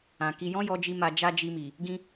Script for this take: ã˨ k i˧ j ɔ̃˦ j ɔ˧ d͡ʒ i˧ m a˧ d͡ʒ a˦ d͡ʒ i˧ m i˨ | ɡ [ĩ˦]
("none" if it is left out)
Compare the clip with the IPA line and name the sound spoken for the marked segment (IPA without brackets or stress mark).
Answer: ĩ˦